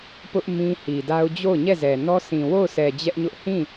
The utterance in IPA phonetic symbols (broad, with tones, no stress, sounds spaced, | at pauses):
p ʊ˦ ʔ m ĩ˦ h i˨ d a˦ ʊ̯ d͡ʑ o˦˨ ʊ̯ ɲ ɛ˦˨ z ɛ˨ n ɔ˦ sʰ ĩ˨ w o˦˨ ʊ̯ s ɛ˨ d͡ʑ ɛ˦ ʔ ɲ ʊ˦ ʔ h ĩ˦˨